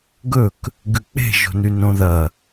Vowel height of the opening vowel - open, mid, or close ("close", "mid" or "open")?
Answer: mid